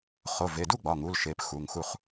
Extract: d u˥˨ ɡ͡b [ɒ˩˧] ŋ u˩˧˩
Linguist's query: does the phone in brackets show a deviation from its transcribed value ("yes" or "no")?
yes